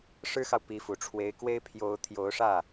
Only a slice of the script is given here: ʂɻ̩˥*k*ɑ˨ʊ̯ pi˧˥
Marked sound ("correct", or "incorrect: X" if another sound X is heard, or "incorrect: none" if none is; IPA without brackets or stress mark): incorrect: x